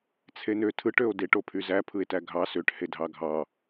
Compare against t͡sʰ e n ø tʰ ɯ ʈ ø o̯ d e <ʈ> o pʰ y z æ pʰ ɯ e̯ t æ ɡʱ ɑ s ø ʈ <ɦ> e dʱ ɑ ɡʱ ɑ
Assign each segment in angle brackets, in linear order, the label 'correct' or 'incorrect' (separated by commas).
correct, incorrect